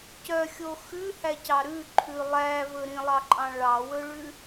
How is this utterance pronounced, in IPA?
c œ xʲ o x ʉ h æ c ɑ ɾ ʉ ǃʰ ʉ lˠ æ v ɵ ɾ ĩ lˠ ɑ ǃʼ ɑ̃ ɭ ɑ w ɵ ɭ ʉ

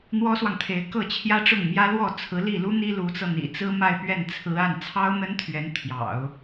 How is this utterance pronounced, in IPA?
n̪ w ɔ˥ s w ɑ˨ ŋ t̪ʰ e˧˥ ɪ̯ k ɤ˥˩ t͡ɕʰ j ä˥ ʈ͡ʂ ʊ˥˩ ŋ m j ä˥ l w ɔ˥˩ t͡sʰ ɹ̩˧˥ l i˥˩ l u˥ n̪ i˥ l u˧˥ t͡s ɤ˧ n̪ ḭ˨˩ t͡s ɹ̩˥ m a˥˧ ɪ̯ p ɥ ɛ˥˩ n t͡sʰ ɹ̩˧˥ a˥˩ n t͡sʰ ɑ˥ ʊ̯ n̪ ə˥ n t̪ʰ ɥ ɛ˧˥ n t̪ʰ j ɑ̰˨˩˦ ʊ̯

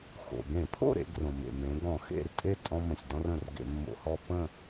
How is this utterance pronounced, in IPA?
x o̰˩ ɡ ẽ˧˩˧ pʰ o̰˥˨ ɾ ḛ˦ ɡ r õ˩ m ḛ˩ m ẽ˩˧ ɡ ɔ̃˧˩˧ x ḛ˥˨ r tʼ e˥˨ tʼ ɔ̃˦ m ə̃˩ sʲ d ɔ̃˦ r ə̃˩ r ɡ ḛ˧˩˧ mː o̰˧˩˧ h ɔ˦ pː ə̃˥˨

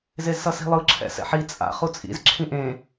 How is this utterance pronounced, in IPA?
z e z s ʌ s i̤ lˠ ɯ ǁʰ ɛ̰ s ɛ̰ ħ i t͡sʼ a̰ χ u t͡sʼ ḭ z ǁʰ ĩ ʔ ẽ

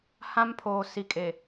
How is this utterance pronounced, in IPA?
h ã˦ m pʰ oː˨ s i˨˦ kʼ e˨

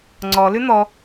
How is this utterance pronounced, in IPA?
ŋ͡ǀ ɔ l ʉ n̪ ɔ

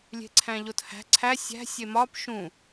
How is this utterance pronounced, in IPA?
lʲ e̤ ǀʰ æ̃ ʎ o t h æ̤ ǀʰ æ sʲ æ̤ sʲ e m ɒ p ʃ ũ

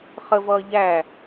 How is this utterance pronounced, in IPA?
χ ə v ʌː ʎ æ

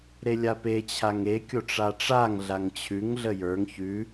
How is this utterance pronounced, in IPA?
ɾ e lʲ a p e t͡ɕʰ a ŋ e kʲ o ʈ͡ʂ a ʈ͡ʂ a ŋ ɮ a ŋ t͡ɕʰ ʉ ŋ ɮ ə j ə˞ ŋ ç ʉ

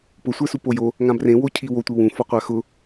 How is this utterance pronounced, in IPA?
p ʊ sʷ ɛ s u p o j o | ŋ ã b r ẽ w o cʰ i w o tʷ i w ũ f ɔ qʷ a x ʊ

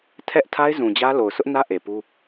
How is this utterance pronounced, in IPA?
tʰ ɛ˦ ʔ tʰ a˦ ɪ̯ z ũ˨ d͡ʑ ä˦ l o˨ ʊ̯ sʰ ʊ˦ ʔ n ä˦ ʔ e˨ p u˦

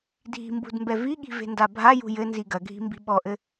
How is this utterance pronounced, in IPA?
dʱ i̤ m b ṳ d m b ɛ v i ɠ i̤ v e̤ n d a bʱ a j ṳ j ɘ n z i ɡ ɐ ɡʱ i̤ m b i̤ ɓ ɔ ʔ ɘ

